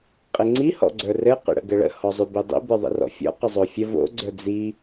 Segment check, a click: present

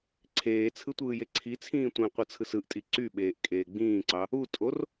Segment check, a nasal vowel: present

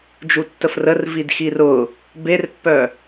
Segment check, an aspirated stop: absent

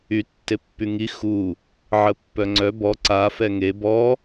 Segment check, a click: present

